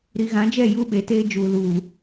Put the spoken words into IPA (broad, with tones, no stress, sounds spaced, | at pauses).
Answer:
ɾ i˨ ɣ ã˨˦ d͡ʒ ɛ˦˨ j u˦ ɓ e˨ t eː˦ d͡ʒ uː˨ l uː˨